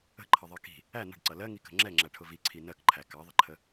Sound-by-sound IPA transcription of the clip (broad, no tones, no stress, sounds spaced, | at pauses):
ə̤ ǃʰ ʌ ðˤ ɜ k i̤ | æ n ə̤ ɖ ǀ ʌ l ɜ ŋ i k ə̤ ŋ͡ǁ ɛ ŋ͡ǁ æ ʈʰ ʊ v i ǀʰ i n ɜ k ǃʰ æ k ɑ ðˤ ə ǃʰ ə